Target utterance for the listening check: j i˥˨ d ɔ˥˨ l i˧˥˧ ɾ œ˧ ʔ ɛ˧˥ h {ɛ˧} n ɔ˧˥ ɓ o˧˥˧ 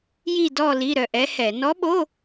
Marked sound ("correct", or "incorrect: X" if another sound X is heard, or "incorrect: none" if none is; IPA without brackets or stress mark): incorrect: ɛ˧˩˧